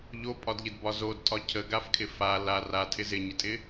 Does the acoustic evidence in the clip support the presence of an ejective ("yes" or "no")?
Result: yes